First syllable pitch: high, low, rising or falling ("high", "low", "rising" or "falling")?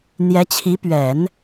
rising